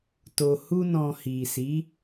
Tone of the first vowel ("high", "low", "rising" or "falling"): low